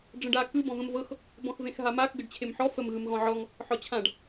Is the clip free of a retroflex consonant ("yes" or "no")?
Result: no